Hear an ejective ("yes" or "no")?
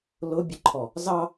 no